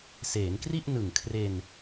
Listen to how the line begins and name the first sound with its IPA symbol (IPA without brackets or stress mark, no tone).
s